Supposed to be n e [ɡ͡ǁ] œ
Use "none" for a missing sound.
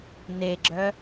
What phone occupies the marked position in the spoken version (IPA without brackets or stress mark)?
ɡ͡ǁ